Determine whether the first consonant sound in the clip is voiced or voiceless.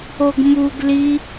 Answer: voiced